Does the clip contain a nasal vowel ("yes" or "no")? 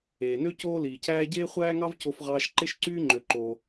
no